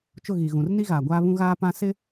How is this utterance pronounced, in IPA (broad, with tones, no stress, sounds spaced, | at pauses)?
t͡ʃ ʊ˦˨ ɣ i˨ ɣ ũ˨ r n i˦ ɣ aː˨ ɡʷ aː˦ β ũ˦ ɣ aː˦ p ã˦ s ɪ˦